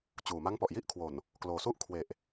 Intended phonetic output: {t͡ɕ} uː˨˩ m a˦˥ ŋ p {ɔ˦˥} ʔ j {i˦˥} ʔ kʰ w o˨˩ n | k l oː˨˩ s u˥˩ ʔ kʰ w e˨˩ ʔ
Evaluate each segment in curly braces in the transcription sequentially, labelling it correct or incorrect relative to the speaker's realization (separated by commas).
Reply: correct, incorrect, incorrect